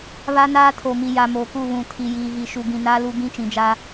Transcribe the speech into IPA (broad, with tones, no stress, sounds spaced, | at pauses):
β a˦ n aː˦ tʰ o˨ m i˨ j a˨ m o˨ k u˦˨ β ũ˨ tʰ i˨ j iː˨ ɣ i˨ ʃ u˨ ɡ ĩ˨ n aː˦ l u˦ ɡ ĩ˦ t͡ʃ ĩ˨ d͡ʒ aː˦